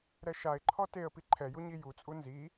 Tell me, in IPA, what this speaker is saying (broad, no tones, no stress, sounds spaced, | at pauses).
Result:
ɾ ɛ ʃ a ɪ̯ ǃʰ ɔ t e ə̯ p i ǃʰ ɛ j u ɲ i j u t͡sʼ u n z i